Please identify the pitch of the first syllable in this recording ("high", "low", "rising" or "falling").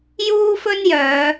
high